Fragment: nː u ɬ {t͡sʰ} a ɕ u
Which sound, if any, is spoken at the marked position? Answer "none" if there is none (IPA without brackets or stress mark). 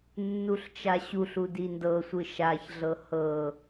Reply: t͡ʃ